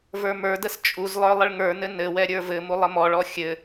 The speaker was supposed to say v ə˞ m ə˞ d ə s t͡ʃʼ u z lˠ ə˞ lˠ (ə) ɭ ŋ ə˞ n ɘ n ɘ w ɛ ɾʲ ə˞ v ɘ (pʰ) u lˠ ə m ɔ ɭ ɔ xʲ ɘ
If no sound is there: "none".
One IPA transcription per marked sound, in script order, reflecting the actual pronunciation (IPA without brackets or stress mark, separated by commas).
ə, m